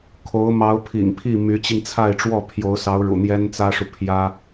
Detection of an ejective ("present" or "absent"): absent